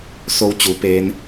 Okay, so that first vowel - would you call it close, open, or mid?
mid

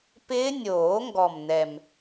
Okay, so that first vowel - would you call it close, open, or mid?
close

